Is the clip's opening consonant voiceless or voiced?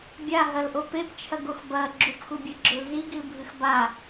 voiced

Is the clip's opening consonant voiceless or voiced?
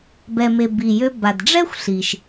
voiced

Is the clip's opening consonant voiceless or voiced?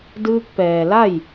voiced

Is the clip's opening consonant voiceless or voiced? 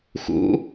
voiceless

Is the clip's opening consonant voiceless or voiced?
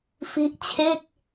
voiceless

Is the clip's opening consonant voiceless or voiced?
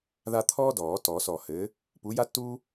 voiced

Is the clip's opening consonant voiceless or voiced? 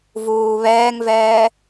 voiced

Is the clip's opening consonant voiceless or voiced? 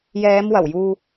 voiced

